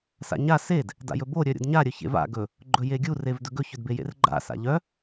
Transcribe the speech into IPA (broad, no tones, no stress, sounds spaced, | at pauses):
s a̰ ɲ a s e d | d a̰ j ɵ b o ɾʲ œ ɾʲ ṵ d ɲ a ɾʲ œ ç ḛ v a̰ ɡ ɵ | ɡ͡ǃ ɵ j e ɡʲ u r e v d ɵ ɡ ɵ ç ɵ d b e j ḛ r ɡ͡ǃ a̰ s a̰ ʎ œ